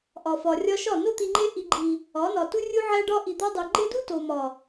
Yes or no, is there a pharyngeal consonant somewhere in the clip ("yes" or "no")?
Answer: yes